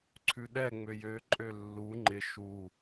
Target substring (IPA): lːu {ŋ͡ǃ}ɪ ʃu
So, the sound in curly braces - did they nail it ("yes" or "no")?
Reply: yes